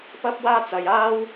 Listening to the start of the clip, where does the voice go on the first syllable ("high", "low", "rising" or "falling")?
high